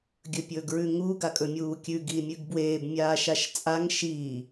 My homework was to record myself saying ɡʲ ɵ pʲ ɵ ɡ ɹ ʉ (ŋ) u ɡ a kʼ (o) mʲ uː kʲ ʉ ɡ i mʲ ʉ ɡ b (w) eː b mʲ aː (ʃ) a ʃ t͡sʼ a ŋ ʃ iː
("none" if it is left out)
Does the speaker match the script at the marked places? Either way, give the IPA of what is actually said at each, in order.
ŋ, ɵ, w, ʃ

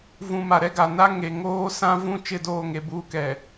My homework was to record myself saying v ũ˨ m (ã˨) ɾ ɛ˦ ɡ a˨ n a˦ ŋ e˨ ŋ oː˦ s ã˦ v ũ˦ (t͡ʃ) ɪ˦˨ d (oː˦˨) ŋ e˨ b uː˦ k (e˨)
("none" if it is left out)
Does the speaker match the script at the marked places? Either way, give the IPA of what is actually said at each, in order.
a˨, t͡ʃ, oː˦˨, ɛ˨

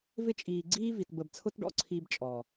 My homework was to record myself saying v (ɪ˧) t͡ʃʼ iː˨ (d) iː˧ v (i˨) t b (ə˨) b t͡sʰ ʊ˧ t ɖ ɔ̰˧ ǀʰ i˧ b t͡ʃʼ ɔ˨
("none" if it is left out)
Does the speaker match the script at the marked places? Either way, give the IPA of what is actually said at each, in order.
ɪ˧, ɡ͡ǀ, i˨, ə˨

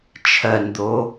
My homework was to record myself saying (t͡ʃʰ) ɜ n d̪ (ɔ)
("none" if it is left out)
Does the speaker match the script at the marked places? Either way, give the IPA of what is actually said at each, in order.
t͡ʃʰ, o

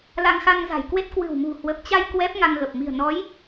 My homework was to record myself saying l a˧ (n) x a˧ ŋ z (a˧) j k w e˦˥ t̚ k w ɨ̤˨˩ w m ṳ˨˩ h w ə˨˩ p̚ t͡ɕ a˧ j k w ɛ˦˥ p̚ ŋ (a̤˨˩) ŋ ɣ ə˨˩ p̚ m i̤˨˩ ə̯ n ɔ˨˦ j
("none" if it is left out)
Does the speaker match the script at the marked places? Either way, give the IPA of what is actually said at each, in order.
ŋ, a̤˨˩, a˧

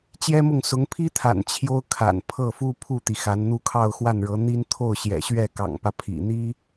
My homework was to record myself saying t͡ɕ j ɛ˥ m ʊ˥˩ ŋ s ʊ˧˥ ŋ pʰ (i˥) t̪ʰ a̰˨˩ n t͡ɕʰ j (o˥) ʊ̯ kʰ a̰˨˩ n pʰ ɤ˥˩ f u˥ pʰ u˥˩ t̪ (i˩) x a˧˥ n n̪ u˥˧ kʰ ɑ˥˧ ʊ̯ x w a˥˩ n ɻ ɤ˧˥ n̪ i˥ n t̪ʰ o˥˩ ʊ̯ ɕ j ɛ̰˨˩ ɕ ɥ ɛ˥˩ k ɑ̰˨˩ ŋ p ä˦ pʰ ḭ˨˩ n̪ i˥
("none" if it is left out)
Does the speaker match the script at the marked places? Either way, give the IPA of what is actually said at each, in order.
i˥, o˥, i˩

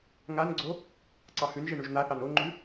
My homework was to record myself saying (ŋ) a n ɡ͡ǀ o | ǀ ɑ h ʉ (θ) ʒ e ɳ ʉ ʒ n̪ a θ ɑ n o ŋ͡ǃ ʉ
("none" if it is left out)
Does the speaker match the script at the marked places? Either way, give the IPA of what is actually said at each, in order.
ŋ, n

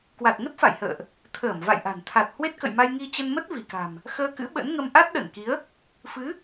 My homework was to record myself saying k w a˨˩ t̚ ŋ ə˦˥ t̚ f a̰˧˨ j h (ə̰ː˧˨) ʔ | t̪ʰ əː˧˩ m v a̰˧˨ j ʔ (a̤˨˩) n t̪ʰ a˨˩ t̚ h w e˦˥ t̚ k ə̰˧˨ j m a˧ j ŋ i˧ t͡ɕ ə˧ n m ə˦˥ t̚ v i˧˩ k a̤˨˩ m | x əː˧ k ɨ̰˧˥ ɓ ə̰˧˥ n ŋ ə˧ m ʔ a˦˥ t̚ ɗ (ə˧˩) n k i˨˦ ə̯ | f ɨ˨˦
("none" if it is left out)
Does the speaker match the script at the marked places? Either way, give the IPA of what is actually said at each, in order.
ə̰ː˧˨, a̤˨˩, ə˧˩

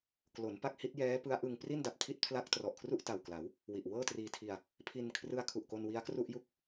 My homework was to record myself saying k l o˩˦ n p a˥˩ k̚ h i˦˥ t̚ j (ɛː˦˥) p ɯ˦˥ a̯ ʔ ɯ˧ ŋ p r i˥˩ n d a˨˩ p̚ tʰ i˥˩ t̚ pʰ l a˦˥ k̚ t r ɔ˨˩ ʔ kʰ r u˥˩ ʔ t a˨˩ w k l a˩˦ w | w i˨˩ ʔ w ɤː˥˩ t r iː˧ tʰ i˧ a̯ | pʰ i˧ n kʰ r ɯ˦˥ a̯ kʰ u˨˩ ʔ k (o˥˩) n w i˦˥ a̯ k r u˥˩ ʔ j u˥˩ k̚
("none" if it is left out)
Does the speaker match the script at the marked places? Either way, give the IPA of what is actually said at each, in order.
ɛː˦˥, o˧

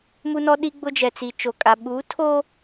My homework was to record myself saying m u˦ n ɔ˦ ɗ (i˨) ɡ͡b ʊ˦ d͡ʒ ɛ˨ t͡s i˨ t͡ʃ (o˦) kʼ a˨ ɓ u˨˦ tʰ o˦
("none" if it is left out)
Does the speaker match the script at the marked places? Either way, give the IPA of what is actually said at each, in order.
i˦, o˨

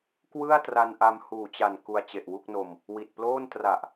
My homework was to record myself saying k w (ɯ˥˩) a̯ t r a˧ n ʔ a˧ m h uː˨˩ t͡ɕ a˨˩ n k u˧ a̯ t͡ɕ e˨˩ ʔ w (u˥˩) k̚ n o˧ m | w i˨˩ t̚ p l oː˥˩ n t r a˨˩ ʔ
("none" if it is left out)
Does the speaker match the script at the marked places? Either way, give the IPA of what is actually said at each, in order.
ɯ˥˩, u˥˩

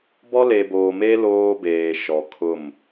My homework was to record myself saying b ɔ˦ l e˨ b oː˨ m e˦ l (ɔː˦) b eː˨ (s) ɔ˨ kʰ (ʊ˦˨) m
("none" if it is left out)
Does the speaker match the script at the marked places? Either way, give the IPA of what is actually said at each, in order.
oː˦, ʃ, ʊ˦˨

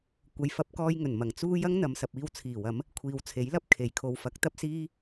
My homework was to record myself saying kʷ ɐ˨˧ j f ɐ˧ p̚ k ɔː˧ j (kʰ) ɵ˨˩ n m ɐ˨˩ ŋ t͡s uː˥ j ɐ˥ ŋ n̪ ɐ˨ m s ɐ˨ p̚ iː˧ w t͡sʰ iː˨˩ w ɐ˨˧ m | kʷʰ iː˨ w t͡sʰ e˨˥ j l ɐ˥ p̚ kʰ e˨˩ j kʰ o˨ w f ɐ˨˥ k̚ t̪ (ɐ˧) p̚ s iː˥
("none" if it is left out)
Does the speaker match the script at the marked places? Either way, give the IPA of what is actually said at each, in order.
ŋ, ɐ˥

